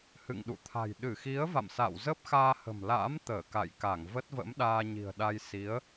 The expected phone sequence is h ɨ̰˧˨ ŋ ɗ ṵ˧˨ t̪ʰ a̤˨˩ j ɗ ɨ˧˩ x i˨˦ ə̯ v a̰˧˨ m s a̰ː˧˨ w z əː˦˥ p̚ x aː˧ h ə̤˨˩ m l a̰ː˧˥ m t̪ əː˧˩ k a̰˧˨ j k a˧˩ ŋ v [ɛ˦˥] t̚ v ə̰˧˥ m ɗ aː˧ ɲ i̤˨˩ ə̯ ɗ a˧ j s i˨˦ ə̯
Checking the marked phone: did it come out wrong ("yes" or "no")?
yes